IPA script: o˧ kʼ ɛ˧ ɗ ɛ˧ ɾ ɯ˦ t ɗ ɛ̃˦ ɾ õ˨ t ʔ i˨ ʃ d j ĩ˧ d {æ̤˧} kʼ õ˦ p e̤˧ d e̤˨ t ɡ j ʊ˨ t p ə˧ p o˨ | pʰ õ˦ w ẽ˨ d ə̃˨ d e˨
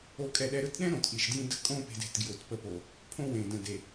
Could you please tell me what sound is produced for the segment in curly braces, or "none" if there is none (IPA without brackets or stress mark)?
ə̤˧